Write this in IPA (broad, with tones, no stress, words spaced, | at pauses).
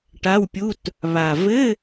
ʈa˧˥˧wpʲu˧˥˧t | βa˨˩ vɘ˧˥˧